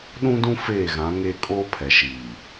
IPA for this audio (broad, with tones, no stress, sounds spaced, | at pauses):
ɗ ũ˦ d ũ˦ f eː˦˨ ɣ ã˨˦ ŋ eː˦ kʼ oː˦ pʰ ɛ˨ ʃ iː˨